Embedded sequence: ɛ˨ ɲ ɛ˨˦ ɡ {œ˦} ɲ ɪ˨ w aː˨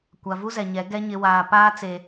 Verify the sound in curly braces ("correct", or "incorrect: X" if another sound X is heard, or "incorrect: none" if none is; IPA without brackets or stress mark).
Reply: incorrect: ɛ˦